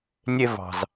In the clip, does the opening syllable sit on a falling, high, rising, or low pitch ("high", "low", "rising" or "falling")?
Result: high